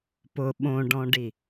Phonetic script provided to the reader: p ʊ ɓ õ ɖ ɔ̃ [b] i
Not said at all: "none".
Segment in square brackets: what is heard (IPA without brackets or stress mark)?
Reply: ɖ